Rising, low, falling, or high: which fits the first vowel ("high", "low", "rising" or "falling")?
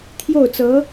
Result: falling